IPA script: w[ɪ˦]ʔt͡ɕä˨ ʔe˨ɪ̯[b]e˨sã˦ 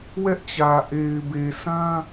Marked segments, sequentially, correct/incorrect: incorrect: ɛ˦, correct

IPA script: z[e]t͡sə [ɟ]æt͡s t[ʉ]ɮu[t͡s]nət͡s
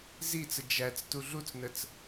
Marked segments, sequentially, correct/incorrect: incorrect: i, incorrect: d͡ʒ, incorrect: u, correct

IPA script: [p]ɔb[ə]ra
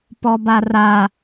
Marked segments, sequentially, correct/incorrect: correct, incorrect: a

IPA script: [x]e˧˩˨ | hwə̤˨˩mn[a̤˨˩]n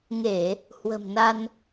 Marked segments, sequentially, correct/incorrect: incorrect: ŋ, incorrect: a˧

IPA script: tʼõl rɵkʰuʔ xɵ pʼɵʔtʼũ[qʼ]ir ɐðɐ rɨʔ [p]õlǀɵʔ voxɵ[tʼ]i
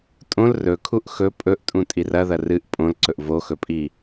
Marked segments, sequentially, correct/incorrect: incorrect: tʼ, incorrect: pʼ, incorrect: pʼ

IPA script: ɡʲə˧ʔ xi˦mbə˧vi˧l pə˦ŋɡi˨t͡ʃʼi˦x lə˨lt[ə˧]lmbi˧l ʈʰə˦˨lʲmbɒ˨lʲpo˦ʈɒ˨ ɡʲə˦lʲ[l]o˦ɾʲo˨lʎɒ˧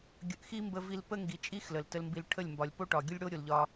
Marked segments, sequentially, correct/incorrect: correct, incorrect: ɽ

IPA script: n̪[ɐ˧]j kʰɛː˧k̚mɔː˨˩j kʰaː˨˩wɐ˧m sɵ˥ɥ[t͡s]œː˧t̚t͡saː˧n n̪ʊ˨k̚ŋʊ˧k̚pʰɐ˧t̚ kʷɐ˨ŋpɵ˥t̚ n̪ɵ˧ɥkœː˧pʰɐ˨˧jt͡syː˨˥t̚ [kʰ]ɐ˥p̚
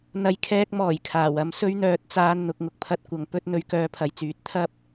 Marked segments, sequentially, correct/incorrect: correct, incorrect: n̪, incorrect: t̪ʰ

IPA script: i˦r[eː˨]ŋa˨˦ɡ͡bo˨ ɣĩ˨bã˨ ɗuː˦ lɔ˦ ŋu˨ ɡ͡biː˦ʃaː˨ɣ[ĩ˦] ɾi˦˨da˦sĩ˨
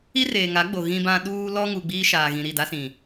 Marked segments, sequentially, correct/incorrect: correct, incorrect: ĩ˨

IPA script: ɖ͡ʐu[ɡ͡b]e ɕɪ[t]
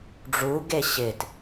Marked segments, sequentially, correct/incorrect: incorrect: ɡ, correct

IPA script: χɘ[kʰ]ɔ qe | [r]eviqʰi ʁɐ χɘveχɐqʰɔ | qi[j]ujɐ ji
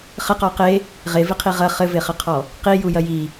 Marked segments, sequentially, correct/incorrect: incorrect: q, incorrect: ʁ, correct

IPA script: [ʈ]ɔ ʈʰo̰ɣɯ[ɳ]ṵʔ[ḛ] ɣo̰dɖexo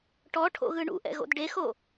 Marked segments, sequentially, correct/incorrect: correct, correct, incorrect: ɛ̰

